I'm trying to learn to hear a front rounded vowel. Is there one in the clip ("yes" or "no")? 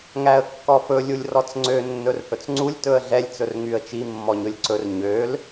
yes